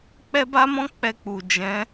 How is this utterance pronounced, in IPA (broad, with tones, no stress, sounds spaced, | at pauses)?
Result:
k͡p ɛ˦ b a˦ m ɔ̃˦ k͡p ɛ˧ k͡p u˨ d͡ʒ ɛ̃˨˦